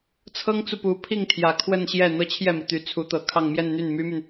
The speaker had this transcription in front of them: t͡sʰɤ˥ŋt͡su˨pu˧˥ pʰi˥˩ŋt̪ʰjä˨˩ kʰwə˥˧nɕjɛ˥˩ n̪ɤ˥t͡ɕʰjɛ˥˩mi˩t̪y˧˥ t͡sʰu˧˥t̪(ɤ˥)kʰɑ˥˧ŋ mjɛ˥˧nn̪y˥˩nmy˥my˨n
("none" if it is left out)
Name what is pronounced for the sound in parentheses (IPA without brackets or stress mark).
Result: ɤ˨˩